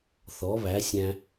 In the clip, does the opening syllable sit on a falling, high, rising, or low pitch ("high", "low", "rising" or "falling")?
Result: rising